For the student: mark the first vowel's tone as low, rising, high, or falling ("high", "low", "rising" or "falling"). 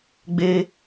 high